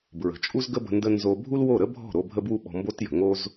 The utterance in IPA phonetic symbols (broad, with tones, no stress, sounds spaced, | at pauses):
b ɹ ə̤˨ t͡ʃʼ u˦ z ɡ ə˦ b ə̤˧ n d ə˦ n z o˧ bʱ u˦ l w o˦˨ ɾ ə˦ bʱ ɔ̤˦˨ ɾ o˧ bʱ ə˦ b w u˦ ɓ ɔ̤˧ m b o˦ t j ə̤˨ ŋ o˦ z